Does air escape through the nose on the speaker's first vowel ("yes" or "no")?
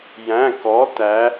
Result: yes